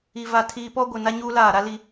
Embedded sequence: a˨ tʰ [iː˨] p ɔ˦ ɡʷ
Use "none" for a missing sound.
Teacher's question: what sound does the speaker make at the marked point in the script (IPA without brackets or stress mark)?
iː˨